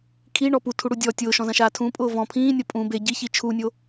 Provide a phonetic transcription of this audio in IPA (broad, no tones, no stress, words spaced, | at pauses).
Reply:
kʰiɳɔ putʰuɽu dʲɔ tʲʊːʃɔ̃zɐ̃ʃaː tʰũpʼʊː vɔ̃ pʰĩːnʲɔ pʼũ be ɟiçi t͡ʃʰunʲo